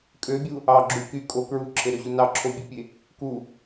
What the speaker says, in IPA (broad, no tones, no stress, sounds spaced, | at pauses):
kʼ ø bʲ u | ɑ ɡ͡ǁ u k y kʼ o k ɹ u ǁʰ e ɾ ø ʑ u n ɑ ǁʰ o bʲ ø pʲ e | k u